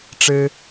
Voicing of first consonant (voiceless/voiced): voiceless